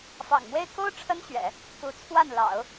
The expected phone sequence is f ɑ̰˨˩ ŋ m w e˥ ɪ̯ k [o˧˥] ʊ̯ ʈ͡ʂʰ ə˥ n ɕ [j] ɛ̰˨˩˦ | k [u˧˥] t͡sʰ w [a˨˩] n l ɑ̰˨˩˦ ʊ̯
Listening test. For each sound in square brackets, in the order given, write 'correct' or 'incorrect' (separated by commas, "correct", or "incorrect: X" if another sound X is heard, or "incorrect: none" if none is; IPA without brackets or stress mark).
incorrect: o˥, incorrect: ɥ, correct, incorrect: a˥˩